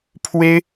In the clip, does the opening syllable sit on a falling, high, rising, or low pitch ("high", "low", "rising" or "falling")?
high